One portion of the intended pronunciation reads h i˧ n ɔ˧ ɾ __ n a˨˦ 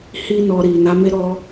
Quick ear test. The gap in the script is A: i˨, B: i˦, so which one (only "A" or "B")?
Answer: A